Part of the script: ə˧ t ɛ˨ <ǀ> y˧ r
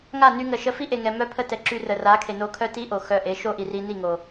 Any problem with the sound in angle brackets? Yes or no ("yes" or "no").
yes